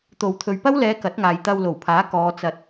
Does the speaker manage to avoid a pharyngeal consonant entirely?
yes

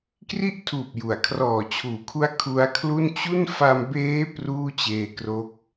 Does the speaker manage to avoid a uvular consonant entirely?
yes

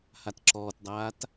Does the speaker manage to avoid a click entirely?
no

